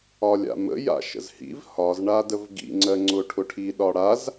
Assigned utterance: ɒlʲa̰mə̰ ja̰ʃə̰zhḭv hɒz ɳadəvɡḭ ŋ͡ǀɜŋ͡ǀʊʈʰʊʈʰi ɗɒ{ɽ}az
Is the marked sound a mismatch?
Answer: no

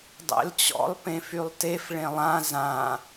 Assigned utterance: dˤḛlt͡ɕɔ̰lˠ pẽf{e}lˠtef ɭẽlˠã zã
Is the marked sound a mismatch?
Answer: yes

